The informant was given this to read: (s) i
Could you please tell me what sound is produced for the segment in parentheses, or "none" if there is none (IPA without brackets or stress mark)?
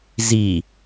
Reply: z